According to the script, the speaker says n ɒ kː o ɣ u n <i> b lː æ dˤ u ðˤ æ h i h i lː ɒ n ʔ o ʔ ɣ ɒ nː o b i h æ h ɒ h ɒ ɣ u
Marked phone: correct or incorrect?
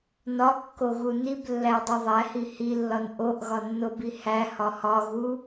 correct